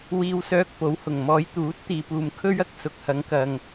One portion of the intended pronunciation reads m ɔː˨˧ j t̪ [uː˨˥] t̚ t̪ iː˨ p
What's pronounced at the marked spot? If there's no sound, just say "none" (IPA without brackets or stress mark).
uː˨˥